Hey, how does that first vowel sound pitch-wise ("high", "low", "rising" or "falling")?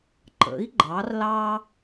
rising